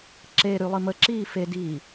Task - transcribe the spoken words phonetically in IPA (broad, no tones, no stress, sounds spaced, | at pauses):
ǁ e ɾ y lˠ i m ə ǁ iː f e d iː